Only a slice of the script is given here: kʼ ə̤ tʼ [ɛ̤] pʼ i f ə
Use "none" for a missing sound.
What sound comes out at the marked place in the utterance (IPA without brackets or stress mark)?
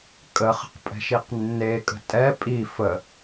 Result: ɛ